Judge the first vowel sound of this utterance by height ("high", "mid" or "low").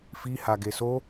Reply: high